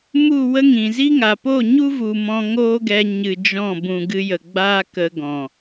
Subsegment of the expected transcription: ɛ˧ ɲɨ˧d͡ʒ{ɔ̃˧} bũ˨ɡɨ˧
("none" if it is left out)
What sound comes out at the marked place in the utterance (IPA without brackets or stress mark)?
ɔ̃˦˨